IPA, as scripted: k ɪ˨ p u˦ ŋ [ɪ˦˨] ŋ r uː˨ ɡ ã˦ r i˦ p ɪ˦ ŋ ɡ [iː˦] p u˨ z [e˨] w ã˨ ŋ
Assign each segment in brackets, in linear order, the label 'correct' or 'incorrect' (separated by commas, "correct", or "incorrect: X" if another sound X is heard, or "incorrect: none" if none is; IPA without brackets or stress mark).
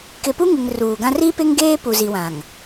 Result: incorrect: ɪ˨, incorrect: eː˦, incorrect: i˨